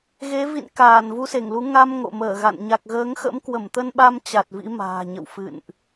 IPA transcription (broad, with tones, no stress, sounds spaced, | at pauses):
ɣ e˨˦ v ḭ˧˨ n k aː˧˩ n v u˧ s e˧˩ ŋ l u˨˦ ŋ a˧ m ŋ o̰˧˨ m əː˧˩ ɣ a̰˧˨ n ɲ a˨˩ k̚ ɣ əː˨˦ ŋ x ə̰˧˥ m k w ə˧˩ m t̪ ə˧ n ɓ a˧ m t͡ɕ a˨˩ t̚ v ḭ˧˥ m a̤ː˨˩ ɲ ə̰˧˨ w f ɨ̰˧˨ n ʔ